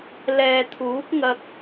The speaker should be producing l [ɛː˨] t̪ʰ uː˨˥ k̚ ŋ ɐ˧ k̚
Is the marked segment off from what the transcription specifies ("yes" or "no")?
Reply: no